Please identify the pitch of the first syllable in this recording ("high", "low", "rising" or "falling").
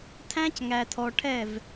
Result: high